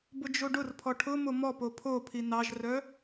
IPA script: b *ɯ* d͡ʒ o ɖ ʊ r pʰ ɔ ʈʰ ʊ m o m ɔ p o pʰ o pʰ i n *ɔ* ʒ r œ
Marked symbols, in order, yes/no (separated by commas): no, no